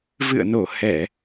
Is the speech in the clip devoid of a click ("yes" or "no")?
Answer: yes